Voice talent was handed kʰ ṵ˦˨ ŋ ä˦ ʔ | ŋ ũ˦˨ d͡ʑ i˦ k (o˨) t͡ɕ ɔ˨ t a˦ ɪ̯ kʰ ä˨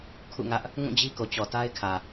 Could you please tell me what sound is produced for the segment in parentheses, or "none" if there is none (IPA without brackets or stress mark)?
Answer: o˨